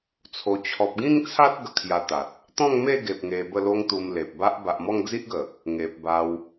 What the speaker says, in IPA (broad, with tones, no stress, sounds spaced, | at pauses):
t͡sʰ o˧ t͡ɕʰ ɔ˨ p̚ ɡ ĩ˥˧ ŋ t͡sʰ a˦ t̚ ɡ ə˧ kʰ j a˧ t̪ a˨ t̚ | t̪ ɔ̃˥˧ ŋ m e˥˧ ɡ e˨ p̚ ŋ e˧ b ə˥˧ l o˦ ŋ t̪ u˧ m l e˨ p̚ b a˦ ʔ b a˨ ʔ m ɔ˥˧ ŋ d͡z i˦ ʔ ɡ ə˨˩ | ŋ e˨ p̚ b a˧ w